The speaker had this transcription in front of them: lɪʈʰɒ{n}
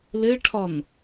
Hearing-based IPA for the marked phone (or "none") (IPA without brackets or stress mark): n